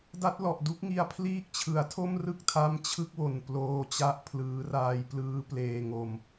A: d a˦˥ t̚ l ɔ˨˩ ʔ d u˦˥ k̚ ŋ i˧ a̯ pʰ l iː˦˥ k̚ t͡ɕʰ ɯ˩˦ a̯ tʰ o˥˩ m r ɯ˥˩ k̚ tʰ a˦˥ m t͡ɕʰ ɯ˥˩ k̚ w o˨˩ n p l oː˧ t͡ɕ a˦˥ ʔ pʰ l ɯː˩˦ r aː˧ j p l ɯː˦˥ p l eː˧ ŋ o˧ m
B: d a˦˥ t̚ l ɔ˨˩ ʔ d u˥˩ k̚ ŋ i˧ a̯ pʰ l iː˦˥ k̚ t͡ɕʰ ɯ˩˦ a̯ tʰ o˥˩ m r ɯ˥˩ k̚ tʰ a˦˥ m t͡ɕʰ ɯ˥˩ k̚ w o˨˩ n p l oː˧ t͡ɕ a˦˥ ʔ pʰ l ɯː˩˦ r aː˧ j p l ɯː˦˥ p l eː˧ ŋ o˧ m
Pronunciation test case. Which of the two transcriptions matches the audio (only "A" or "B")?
A